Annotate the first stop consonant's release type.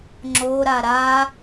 click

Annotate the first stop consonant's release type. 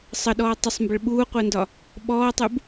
implosive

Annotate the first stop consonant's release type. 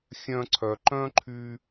click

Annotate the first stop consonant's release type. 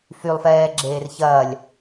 click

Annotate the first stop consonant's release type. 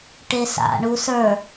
plain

